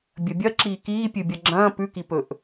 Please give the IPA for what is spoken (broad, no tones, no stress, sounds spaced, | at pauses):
bʲ ɐ bʲ ɐ ǁ iː k iː pʲ ɨ bʲ ɐ ɡ͡ǁ ɐ̃ː p ʉ k i p ɵ ʔ